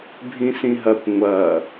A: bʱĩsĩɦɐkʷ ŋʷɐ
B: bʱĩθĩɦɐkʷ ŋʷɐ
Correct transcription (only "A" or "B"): A